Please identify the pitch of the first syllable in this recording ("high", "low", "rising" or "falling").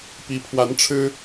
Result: rising